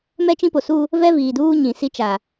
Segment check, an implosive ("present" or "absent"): absent